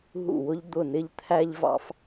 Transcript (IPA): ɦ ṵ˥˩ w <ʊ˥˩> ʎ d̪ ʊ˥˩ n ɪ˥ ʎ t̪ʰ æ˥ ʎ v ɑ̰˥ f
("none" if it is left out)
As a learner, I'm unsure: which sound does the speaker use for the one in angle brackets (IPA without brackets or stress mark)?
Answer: ʊ˥